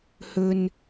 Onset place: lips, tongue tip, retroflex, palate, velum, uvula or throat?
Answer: throat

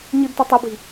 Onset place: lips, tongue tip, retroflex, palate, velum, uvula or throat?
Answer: palate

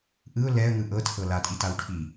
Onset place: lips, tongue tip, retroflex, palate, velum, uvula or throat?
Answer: throat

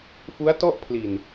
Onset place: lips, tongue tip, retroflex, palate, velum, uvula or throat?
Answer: lips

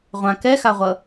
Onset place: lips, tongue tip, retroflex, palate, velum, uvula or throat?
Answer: uvula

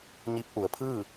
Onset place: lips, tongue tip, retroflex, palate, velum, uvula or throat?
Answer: palate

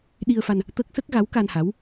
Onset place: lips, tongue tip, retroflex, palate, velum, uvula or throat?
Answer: tongue tip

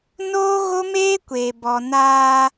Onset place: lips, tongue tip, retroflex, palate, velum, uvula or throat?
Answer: tongue tip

